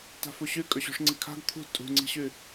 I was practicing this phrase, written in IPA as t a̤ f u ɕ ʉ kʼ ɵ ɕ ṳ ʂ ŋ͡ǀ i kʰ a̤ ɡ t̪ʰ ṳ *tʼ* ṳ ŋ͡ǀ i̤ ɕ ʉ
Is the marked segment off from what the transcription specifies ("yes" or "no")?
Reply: no